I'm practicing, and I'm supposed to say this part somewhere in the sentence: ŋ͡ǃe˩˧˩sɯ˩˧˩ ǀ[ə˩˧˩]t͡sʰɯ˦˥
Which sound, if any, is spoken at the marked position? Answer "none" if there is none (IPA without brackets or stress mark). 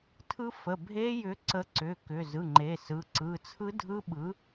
ɯ˩˧˩